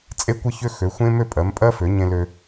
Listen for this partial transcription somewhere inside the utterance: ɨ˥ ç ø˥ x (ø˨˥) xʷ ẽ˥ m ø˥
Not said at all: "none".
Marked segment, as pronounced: ø˨˥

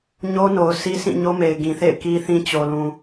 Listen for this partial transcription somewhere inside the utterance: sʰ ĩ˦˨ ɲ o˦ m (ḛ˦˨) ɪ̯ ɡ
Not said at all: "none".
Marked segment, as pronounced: e˨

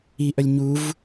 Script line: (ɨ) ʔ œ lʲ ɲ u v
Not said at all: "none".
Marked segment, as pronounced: i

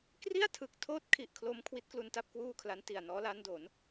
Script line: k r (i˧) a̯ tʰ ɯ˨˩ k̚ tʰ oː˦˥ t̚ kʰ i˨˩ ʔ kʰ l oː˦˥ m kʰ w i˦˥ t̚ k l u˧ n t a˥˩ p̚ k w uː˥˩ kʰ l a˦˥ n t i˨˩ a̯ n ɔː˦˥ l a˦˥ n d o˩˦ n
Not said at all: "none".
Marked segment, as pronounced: i˥˩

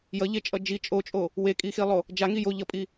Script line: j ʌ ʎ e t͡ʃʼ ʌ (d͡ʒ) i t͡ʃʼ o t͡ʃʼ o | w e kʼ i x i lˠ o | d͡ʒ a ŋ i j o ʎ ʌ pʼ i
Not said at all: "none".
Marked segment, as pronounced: d͡ʒ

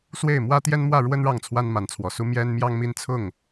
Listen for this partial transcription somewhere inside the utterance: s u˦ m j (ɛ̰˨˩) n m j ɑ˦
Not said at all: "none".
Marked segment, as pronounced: ɛ˦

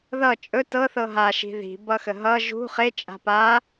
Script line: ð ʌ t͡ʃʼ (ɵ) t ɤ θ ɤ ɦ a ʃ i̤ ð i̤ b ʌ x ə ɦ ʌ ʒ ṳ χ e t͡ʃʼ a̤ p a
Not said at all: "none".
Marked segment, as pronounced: ɵ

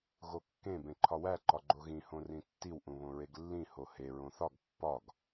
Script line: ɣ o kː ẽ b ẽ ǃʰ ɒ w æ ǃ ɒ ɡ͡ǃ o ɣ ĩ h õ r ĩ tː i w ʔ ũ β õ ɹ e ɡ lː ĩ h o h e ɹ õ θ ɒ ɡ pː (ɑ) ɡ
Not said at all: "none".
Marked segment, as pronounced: ɒ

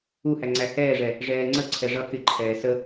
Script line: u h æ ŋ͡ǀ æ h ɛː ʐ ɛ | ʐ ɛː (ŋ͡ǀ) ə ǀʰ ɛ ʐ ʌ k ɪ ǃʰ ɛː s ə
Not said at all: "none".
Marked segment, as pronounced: ŋ͡ǀ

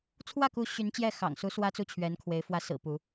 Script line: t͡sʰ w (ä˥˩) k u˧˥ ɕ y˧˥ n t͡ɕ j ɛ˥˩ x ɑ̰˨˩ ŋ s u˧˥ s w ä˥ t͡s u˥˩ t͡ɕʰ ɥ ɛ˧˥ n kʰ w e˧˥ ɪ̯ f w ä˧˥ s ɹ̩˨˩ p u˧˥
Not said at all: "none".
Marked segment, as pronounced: ä˥˩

